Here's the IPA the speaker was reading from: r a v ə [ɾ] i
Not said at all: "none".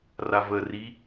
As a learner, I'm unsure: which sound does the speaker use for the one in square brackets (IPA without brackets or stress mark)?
r